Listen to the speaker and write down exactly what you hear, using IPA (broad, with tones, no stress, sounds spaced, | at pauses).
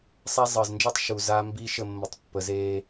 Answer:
sˤ æ˦ zˤ əː˨ z n d͡ʒ ɤ˦ tˤ ʃ u˨ z a˦ m b i˦ ʃ ə˦˨ mː ə˨ tˤ pː ə˨ z eː˦